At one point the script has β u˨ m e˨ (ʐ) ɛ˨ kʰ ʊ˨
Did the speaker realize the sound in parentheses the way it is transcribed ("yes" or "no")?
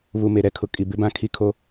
no